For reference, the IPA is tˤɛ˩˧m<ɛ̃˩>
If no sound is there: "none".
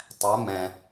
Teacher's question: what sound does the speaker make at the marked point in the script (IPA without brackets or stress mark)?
ɛ̃˩